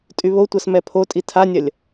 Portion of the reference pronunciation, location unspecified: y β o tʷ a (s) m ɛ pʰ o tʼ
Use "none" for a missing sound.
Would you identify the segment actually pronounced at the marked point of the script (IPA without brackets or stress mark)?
s